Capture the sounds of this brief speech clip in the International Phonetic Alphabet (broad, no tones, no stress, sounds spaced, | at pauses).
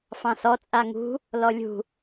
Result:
f ɑ̃ s ɔ t͡sʼ a ŋ ṳ | l ɔ lʲ ṳ